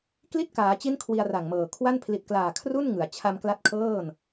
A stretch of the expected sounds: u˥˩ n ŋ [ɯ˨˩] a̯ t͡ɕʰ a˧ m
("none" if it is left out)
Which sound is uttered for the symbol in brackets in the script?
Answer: ɯ˩˦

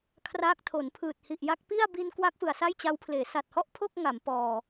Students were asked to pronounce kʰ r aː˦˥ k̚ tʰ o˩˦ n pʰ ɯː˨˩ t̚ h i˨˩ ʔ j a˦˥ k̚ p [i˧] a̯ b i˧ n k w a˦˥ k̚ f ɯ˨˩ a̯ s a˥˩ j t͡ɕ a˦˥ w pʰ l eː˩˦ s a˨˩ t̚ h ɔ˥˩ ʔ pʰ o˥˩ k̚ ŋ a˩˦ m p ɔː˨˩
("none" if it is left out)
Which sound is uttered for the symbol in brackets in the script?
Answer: i˥˩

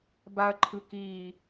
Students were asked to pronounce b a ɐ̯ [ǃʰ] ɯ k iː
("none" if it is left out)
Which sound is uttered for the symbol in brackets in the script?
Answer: ǃʰ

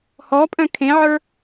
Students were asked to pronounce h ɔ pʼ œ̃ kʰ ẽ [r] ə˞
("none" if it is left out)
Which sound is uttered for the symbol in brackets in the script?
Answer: ʕ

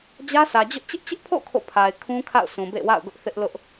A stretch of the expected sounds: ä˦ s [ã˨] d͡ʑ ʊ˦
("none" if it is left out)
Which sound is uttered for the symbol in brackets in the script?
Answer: ä˨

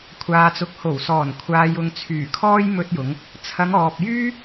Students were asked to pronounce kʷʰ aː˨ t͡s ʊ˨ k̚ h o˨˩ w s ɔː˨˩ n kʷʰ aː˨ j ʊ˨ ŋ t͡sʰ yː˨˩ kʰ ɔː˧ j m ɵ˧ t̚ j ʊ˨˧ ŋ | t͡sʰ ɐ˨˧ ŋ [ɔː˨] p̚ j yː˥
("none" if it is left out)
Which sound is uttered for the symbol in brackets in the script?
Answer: ɔː˨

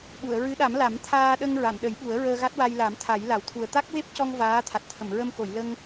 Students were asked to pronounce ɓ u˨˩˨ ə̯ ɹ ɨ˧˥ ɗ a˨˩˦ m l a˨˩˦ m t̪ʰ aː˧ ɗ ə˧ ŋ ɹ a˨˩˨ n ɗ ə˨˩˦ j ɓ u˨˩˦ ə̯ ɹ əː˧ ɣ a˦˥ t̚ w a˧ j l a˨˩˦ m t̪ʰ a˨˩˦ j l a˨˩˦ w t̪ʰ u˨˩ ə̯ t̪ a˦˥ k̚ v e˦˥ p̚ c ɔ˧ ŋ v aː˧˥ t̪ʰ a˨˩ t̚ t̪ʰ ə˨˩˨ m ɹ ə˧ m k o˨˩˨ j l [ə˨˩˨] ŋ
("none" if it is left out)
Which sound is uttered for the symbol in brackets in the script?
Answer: ə˧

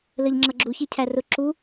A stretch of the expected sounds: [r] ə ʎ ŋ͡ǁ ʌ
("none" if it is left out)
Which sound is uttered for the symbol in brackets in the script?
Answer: l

